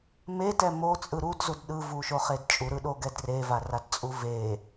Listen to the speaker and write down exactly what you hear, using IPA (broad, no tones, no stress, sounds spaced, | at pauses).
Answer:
m e t ɛ m o t͡sʼ ɯ ɾ u d z u d ɗ ɯ v u ʃ o χ e d t͡ʃʼ u ɾ ɯ ɗ o ɡ ɛ d r e v a r a d t͡sʼ u v e